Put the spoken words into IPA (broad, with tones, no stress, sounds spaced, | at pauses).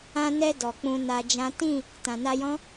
ã˧ n ɛ˧ d ɔ˨ k͡p ũ˧ n a˧ d͡ʒ ã˦ t ĩ˦˨ | t ã˨ n a˧ j ɔ̃˦